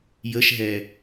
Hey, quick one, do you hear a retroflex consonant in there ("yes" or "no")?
no